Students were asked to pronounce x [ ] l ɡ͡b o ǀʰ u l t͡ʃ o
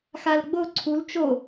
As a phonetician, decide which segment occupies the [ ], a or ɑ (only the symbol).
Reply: a